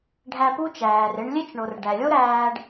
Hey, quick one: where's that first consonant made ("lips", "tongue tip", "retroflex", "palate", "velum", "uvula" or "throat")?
retroflex